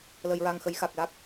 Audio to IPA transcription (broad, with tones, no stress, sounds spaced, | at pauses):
l əː˨˩˨ j ɹ a˨˩ ŋ x ə˨˩˦ j x a˨˩ k̚ l a˦˥ k̚